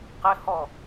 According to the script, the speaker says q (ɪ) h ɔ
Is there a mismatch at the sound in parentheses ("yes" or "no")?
no